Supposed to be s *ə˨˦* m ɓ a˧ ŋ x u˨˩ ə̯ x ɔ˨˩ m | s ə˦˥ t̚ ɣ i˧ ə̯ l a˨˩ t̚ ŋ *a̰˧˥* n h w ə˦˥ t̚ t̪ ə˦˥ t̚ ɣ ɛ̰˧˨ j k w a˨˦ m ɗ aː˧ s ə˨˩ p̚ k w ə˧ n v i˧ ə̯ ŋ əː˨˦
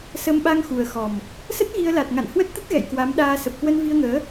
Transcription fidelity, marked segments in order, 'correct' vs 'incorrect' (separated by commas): incorrect, incorrect